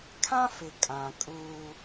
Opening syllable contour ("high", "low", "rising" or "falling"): high